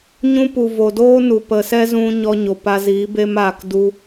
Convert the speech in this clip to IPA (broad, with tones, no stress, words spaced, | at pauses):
ɲũ˧pu˨ vo˨doː˦nu˨ pə˨sɛ˦zũ˧ ɲɔ˧ɲo˨pa˧ziː˨˦ be˦maː˧kdu˦